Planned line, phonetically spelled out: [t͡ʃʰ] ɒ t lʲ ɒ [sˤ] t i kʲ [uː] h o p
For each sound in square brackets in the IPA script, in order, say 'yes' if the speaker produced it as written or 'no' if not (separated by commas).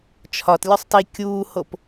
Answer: yes, yes, yes